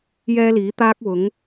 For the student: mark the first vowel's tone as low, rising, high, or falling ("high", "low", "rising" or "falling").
high